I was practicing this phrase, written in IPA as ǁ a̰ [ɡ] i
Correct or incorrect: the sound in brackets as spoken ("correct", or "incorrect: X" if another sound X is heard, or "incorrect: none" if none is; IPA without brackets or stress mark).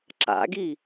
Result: correct